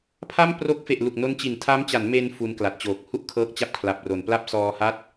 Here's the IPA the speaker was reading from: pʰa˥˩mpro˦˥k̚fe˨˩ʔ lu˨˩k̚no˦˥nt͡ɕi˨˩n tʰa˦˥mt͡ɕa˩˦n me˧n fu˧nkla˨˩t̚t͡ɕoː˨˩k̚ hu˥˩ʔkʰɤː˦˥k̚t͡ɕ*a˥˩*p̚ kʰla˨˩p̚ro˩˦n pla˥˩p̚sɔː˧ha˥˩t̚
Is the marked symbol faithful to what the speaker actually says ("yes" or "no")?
no